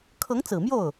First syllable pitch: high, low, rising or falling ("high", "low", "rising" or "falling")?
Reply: rising